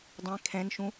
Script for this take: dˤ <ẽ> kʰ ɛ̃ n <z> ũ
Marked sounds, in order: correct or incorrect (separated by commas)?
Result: correct, incorrect